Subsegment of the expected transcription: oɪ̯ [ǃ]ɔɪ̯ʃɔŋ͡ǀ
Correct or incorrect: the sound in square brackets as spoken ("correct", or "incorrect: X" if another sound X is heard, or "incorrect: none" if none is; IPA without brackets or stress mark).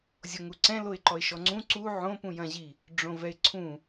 correct